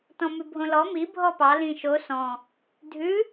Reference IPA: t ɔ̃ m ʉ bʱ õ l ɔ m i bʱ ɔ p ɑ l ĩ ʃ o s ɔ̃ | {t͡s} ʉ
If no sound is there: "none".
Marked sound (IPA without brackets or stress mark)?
dʱ